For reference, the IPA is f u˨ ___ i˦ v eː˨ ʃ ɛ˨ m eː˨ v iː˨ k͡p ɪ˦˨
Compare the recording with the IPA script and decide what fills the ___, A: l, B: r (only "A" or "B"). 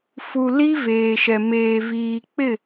A